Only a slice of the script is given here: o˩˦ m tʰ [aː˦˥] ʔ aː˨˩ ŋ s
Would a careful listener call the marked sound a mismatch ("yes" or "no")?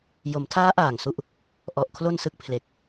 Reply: no